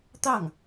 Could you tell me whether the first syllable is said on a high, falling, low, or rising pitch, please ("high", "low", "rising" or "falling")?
falling